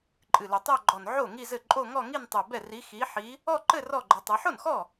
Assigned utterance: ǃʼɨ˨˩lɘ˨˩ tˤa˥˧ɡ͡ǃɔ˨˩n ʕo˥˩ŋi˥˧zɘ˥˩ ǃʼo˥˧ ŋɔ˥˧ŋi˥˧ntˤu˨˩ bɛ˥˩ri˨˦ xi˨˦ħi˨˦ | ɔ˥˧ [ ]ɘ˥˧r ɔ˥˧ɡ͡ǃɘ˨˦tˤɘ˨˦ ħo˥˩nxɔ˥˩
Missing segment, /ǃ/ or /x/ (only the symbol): ǃ